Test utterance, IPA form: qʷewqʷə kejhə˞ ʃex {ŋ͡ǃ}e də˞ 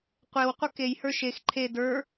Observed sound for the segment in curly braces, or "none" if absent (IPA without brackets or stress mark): ǃʰ